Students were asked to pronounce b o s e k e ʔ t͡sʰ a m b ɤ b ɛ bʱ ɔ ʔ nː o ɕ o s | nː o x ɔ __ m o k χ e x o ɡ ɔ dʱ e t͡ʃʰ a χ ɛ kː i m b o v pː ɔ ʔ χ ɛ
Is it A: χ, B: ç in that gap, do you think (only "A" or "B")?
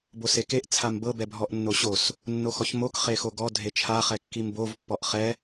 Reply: B